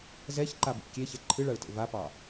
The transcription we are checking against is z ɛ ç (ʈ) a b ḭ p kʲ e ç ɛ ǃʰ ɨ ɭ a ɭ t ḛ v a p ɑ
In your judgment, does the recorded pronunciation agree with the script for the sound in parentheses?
no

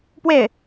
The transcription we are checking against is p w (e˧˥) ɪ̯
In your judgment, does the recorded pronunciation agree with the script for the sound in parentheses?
no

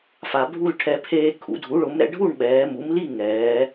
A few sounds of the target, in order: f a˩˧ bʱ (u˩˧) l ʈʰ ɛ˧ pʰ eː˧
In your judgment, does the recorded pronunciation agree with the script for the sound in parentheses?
no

